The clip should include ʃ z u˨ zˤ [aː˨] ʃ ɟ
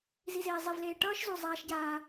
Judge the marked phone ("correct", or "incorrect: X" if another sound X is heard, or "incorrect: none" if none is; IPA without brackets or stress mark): incorrect: aː˦